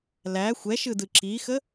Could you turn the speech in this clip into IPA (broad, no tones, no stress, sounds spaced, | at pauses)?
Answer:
l æ xʷ ɛ ʃ ɯ d ɯ ǁ i x ə